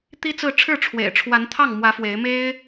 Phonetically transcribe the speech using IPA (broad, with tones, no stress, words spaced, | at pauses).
t̪i˥t͡sɹ̩˥˧ ʈ͡ʂʰɻ̩˥˩ ʈ͡ʂʰwḛ˨˩ɪ̯ʈ͡ʂʰwa˧˥n t̪ʰɑ˥˩ŋmwä˧˥ fwe˧˥ɪ̯me˥ɪ̯